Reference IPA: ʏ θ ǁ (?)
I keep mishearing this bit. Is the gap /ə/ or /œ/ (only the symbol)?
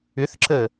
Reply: ə